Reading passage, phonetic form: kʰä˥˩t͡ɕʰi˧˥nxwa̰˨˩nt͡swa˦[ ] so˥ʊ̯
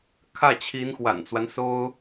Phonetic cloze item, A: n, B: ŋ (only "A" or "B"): A